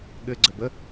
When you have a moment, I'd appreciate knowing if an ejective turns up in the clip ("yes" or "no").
no